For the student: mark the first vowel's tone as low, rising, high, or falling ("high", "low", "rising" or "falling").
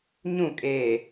falling